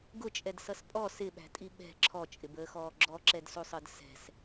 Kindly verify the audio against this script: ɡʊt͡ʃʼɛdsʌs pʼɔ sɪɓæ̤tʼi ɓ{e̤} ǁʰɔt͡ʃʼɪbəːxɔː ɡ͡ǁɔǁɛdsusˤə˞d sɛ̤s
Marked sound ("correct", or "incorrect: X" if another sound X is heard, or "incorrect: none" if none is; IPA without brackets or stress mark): incorrect: ɛ̤